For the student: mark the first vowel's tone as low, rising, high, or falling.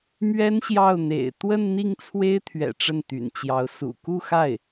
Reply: high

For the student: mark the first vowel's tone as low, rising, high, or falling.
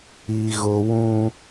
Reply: low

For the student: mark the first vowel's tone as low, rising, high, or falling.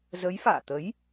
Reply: rising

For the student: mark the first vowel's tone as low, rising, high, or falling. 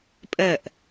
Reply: falling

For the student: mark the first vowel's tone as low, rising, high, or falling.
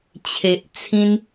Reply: low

